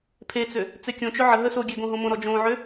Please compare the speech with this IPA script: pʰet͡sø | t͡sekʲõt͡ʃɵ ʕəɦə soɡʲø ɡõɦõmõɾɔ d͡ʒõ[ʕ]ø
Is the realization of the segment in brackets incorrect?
no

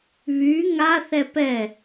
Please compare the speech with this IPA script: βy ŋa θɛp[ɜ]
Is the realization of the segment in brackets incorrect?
yes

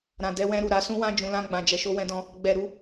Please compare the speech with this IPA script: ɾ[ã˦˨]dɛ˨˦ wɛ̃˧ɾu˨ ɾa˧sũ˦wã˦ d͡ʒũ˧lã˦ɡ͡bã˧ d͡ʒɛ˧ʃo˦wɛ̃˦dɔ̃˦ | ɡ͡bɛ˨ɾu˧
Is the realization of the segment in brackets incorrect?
yes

